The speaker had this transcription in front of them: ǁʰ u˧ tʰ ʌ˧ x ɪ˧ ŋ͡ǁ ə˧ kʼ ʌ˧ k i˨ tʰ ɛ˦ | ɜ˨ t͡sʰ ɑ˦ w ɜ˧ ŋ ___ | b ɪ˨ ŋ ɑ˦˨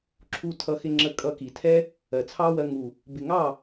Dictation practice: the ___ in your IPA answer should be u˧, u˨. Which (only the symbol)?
u˨